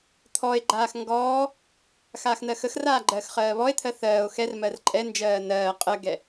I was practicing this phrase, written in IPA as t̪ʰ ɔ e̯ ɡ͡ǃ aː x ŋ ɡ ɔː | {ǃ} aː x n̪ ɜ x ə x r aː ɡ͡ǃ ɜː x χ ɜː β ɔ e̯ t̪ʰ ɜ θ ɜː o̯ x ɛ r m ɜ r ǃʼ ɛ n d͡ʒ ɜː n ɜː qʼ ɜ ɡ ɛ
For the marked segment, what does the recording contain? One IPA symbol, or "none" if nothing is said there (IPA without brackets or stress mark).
x